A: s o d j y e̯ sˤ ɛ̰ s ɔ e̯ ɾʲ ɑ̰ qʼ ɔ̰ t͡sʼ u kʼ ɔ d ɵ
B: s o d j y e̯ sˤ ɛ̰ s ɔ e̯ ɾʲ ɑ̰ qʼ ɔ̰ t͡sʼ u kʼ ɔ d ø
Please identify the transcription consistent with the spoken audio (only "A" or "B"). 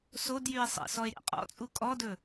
A